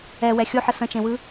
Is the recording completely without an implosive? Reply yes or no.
yes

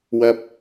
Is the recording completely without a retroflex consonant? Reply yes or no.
yes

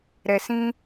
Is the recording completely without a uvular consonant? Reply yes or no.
yes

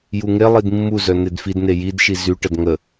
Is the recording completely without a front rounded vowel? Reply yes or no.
no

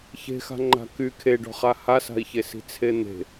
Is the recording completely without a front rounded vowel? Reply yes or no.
no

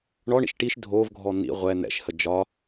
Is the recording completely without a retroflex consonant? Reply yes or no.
no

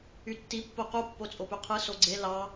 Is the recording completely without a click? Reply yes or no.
no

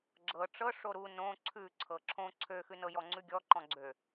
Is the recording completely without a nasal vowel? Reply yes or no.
no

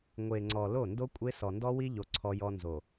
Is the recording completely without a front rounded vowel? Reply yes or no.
yes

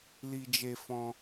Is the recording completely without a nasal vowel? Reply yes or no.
no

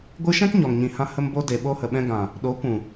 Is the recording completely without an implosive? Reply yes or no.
no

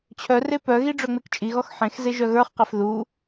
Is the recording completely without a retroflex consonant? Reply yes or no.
no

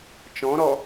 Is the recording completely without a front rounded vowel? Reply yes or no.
yes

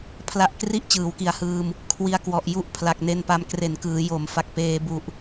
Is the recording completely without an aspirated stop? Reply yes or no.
no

